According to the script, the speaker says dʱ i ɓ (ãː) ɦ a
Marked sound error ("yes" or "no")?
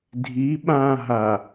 no